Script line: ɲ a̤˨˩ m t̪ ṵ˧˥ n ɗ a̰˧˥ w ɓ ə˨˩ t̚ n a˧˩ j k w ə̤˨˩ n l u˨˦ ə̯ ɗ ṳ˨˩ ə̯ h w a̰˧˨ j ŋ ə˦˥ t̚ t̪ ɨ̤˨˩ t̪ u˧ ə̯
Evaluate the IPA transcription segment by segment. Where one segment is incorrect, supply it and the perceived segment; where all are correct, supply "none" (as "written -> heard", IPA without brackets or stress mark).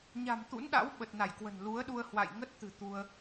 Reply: ṳ˨˩ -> u˧